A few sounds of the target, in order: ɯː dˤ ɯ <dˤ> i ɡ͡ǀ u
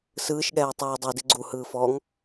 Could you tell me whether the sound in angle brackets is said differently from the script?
yes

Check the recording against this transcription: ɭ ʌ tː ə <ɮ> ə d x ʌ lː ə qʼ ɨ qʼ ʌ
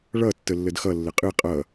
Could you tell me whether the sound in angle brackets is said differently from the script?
yes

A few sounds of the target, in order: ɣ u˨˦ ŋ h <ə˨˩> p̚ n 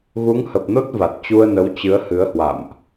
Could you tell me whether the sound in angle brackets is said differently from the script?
no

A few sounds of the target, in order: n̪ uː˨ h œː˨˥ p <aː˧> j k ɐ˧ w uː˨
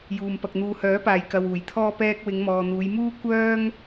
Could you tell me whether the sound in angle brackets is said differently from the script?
no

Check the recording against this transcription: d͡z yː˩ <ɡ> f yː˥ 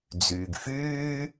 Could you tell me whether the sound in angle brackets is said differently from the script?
no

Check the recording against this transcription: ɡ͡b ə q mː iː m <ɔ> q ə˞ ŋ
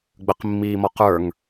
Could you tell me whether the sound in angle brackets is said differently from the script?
no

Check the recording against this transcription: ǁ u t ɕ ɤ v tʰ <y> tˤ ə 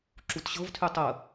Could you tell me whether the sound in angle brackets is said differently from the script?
no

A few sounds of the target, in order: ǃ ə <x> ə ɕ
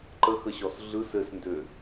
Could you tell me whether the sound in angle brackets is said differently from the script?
no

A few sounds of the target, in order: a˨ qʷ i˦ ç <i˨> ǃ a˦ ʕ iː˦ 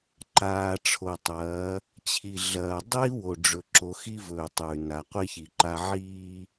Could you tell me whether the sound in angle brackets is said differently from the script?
no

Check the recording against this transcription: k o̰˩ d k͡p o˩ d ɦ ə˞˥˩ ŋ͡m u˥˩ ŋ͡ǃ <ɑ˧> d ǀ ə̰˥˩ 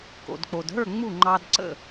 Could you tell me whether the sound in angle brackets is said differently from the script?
no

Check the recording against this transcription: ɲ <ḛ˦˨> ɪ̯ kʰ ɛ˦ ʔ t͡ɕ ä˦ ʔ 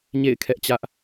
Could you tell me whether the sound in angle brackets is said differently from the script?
no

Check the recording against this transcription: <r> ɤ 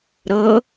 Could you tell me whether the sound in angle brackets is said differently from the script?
yes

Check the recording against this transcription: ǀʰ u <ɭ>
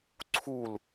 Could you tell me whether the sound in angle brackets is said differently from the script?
yes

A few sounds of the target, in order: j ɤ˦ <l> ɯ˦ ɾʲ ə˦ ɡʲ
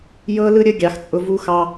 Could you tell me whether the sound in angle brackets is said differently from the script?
no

